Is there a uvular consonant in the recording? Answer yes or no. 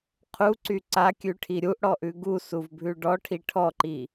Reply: yes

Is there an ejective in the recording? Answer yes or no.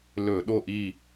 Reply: no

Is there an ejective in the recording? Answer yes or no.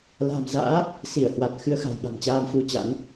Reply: no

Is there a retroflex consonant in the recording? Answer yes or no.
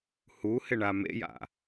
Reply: yes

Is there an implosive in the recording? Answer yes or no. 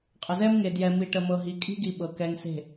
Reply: yes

